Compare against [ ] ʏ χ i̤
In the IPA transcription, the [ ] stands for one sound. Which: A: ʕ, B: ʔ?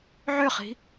A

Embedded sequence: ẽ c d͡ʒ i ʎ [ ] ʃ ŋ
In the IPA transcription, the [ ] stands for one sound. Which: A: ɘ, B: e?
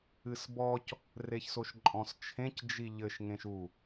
A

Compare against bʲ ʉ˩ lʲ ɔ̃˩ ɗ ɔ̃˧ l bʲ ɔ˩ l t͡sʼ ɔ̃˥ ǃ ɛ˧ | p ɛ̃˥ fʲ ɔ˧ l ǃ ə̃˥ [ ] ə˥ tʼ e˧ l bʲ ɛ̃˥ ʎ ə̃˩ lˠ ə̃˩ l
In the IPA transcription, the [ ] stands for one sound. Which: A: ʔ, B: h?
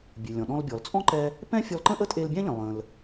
A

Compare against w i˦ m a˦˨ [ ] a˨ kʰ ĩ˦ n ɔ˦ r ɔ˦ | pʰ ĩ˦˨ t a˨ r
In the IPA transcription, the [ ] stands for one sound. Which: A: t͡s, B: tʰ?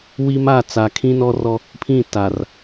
A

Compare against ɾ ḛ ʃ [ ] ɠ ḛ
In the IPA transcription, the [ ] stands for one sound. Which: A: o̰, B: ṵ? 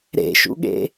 B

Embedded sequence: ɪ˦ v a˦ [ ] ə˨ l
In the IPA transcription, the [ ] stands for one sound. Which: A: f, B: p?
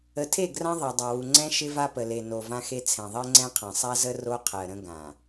B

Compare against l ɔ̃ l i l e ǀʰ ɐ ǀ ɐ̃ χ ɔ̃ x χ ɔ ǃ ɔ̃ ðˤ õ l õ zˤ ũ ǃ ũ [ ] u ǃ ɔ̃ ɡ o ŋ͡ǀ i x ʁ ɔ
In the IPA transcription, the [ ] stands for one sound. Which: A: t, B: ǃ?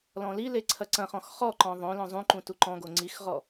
A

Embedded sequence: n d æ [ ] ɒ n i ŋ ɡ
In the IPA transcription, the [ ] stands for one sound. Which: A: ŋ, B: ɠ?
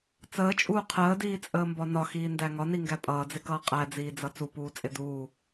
A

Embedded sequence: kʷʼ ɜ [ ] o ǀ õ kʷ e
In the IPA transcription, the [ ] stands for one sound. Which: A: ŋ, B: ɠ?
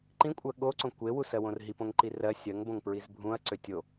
B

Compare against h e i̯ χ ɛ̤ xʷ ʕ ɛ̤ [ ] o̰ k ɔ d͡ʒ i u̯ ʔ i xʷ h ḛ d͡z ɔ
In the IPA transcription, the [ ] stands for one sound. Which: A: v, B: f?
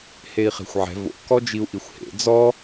A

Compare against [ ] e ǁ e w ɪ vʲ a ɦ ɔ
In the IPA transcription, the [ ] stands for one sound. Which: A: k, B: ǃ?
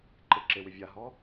B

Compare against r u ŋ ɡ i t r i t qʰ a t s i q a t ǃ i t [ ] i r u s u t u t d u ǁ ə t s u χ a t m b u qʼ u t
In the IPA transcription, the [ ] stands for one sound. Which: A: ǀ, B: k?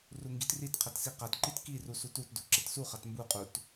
B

